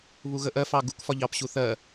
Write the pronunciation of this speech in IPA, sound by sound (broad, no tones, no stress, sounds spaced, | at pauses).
β u ɣ ə ʔ ɜ f ɑ ɡ u k f ɒ ʎ ɑ p ɕ u θ ɜ